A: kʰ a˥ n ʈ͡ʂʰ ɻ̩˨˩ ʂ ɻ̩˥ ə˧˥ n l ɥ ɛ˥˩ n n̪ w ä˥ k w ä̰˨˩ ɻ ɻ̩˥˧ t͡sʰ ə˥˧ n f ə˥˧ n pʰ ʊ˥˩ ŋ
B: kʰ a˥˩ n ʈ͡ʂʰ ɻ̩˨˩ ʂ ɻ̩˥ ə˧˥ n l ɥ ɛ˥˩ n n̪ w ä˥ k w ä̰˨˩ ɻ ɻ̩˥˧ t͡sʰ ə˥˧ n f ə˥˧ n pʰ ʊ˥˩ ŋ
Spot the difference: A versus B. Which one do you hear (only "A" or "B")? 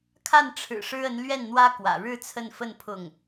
B